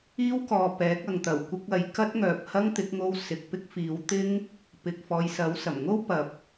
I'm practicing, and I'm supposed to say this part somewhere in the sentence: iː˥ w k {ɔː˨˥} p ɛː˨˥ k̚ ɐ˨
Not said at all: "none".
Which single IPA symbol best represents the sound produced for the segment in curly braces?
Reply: ɔː˨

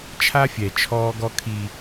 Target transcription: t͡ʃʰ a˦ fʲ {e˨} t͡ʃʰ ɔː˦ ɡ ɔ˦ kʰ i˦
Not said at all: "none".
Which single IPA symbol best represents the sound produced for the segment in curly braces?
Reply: ɛ˨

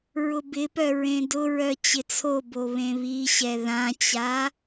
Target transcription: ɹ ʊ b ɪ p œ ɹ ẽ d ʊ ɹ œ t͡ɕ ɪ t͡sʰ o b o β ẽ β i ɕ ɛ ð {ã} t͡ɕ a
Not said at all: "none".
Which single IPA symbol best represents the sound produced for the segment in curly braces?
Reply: ã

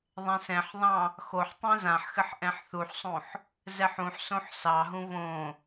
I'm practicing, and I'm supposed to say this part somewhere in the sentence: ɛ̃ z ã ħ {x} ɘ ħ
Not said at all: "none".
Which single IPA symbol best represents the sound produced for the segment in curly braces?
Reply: x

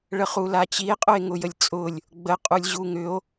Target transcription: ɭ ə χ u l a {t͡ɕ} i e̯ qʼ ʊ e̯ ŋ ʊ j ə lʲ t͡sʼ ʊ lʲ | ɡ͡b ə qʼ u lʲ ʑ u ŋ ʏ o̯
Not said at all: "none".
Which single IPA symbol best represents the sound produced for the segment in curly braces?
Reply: t͡ɕ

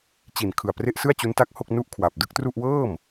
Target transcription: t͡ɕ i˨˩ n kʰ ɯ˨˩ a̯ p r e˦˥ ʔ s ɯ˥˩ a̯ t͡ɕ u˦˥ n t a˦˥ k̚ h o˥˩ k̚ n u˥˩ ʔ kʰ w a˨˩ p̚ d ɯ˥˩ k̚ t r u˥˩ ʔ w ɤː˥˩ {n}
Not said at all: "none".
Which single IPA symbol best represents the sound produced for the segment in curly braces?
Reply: m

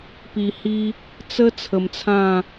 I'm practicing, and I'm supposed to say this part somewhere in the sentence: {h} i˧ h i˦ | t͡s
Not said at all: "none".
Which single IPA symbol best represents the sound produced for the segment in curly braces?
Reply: p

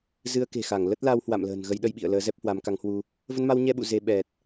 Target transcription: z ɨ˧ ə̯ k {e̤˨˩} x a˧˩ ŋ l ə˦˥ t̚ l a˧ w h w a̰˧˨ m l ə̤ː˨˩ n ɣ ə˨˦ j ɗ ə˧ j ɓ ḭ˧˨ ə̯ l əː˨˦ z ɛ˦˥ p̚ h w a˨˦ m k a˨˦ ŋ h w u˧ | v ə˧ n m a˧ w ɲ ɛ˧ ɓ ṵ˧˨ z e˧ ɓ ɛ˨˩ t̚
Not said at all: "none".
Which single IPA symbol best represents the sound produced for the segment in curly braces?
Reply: e̤˨˩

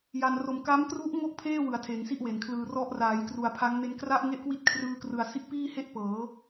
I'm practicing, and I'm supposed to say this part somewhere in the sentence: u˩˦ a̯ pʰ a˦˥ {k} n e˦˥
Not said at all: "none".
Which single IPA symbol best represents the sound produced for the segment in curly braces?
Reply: ŋ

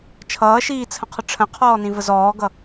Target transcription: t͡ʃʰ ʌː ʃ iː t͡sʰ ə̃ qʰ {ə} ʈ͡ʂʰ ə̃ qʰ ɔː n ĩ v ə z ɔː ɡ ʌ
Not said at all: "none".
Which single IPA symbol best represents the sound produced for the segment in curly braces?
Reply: ə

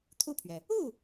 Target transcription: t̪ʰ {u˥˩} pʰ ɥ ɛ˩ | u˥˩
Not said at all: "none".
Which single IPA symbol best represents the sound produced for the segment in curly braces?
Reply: u˥˩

